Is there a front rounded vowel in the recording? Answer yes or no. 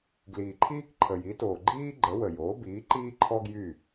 yes